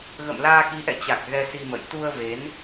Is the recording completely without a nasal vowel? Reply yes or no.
yes